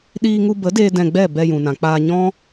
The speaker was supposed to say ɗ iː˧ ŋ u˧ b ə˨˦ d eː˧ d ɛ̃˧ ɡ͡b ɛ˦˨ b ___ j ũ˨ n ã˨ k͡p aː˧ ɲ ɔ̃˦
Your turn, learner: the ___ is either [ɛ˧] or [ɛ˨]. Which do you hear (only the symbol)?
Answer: ɛ˧